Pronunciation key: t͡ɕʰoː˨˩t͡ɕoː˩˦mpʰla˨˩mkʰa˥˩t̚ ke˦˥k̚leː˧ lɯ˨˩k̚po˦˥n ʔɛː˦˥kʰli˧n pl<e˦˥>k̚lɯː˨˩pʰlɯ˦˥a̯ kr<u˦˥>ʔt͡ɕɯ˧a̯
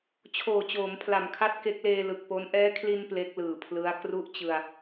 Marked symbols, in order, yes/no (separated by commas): yes, yes